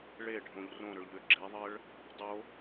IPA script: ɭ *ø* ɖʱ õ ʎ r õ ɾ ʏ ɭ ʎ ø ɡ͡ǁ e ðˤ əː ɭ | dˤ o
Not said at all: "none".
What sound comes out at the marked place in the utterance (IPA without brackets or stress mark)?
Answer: e